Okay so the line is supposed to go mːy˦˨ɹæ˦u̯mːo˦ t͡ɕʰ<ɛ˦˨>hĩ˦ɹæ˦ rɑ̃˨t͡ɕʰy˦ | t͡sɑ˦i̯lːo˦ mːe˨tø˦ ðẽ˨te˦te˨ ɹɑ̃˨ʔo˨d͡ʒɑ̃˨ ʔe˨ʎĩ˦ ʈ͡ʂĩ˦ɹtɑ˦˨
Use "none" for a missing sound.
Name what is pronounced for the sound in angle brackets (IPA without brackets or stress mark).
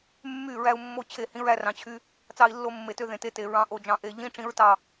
e˦˨